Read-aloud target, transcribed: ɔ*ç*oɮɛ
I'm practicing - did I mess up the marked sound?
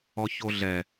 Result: no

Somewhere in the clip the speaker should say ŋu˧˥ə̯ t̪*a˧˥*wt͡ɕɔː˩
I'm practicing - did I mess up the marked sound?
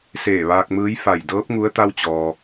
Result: yes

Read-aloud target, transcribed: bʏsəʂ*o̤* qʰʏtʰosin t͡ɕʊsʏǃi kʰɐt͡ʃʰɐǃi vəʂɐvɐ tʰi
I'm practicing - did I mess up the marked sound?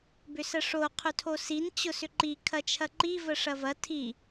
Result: yes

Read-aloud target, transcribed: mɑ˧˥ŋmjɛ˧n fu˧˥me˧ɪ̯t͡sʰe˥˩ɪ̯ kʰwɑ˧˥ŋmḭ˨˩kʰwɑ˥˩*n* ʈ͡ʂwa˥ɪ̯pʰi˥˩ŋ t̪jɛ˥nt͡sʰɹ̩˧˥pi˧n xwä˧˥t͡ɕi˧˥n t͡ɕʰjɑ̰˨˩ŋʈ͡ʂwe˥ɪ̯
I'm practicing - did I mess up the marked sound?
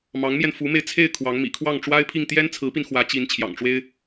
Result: yes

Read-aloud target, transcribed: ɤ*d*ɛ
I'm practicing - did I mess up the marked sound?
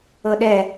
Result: yes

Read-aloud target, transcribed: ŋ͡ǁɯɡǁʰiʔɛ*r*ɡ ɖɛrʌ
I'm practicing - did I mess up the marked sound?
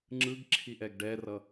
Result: yes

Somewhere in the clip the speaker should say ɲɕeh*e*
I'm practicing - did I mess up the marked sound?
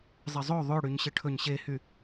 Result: yes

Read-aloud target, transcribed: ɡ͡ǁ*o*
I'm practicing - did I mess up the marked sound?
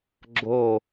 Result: no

